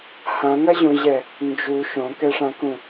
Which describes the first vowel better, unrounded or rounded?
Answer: unrounded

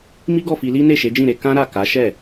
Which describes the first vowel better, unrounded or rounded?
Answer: unrounded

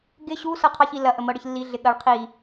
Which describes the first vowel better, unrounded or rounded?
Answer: unrounded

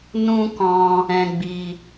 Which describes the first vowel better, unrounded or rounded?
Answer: rounded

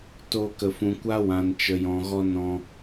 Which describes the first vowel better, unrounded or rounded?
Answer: rounded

